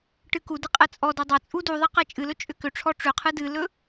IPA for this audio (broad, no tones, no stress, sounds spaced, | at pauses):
ʈ ɨ k u d ɨ qʼ ɛ t͡sʼ ɔ d ɵ dˤ a t͡sʼ u d u ðˤ ɛ q ɛ t͡ʃʼ ɨ l ɵ t͡ʃʼ ʏ k ʏ ʈ͡ʂʰ ɔ ʈ͡ʂ ʏ qʰ ɨ d ɨ l ɵ